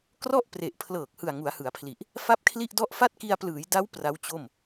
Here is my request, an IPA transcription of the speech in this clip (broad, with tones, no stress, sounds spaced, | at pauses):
k r ɔ˥˩ ʔ p r e˨˩ ʔ pʰ l ɤː˨˩ k̚ h ɯ˨˩ a̯ ŋ u˩˦ a̯ h ɯ˩˦ a̯ pʰ l i˨˩ ʔ | f a˥˩ p̚ kʰ l i˥˩ ʔ d ɔ˥˩ ʔ f a˥˩ t̚ k i˧ a̯ p l ɯː˩˦ j d a˦˥ w p r a˦˥ w t͡ɕ o˥˩ m